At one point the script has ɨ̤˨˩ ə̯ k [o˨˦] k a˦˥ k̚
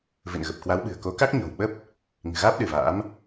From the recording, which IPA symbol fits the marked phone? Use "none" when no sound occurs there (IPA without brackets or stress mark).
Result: o˨˦